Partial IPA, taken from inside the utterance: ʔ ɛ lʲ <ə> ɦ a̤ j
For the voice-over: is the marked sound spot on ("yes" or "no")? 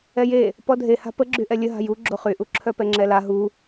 yes